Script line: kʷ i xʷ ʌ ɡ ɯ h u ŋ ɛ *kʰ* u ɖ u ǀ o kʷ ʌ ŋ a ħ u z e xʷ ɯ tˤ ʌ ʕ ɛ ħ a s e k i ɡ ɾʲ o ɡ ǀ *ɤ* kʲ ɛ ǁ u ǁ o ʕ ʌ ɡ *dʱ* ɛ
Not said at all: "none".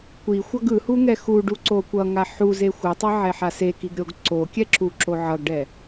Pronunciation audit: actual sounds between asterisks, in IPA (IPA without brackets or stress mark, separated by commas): x, o, ɖ